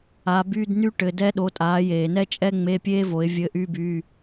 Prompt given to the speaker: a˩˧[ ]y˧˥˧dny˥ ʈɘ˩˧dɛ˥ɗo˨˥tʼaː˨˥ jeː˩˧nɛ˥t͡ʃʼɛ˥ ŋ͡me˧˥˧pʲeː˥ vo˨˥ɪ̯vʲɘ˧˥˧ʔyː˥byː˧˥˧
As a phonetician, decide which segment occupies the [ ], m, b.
b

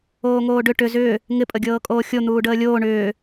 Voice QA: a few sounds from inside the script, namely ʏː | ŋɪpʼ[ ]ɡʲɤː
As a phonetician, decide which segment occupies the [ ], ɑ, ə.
ə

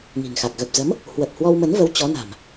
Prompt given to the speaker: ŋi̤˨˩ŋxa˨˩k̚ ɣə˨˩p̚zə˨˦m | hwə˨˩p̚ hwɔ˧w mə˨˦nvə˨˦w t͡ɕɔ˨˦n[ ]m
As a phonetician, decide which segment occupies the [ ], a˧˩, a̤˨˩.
a̤˨˩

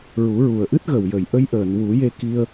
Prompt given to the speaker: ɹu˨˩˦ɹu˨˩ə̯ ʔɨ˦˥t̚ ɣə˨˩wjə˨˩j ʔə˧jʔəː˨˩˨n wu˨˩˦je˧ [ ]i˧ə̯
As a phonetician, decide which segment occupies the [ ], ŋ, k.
k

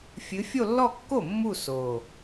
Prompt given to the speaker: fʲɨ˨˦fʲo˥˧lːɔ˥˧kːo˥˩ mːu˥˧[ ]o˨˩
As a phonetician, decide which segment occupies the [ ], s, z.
s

